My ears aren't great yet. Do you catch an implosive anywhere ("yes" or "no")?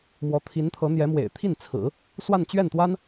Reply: no